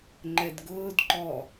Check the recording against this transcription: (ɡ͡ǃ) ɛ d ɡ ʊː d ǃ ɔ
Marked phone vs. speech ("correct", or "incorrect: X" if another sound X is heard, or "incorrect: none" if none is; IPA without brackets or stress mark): incorrect: ŋ͡ǃ